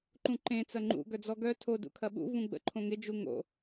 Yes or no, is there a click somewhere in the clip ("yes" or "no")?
yes